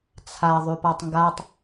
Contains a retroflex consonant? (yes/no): no